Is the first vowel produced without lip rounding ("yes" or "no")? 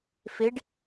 yes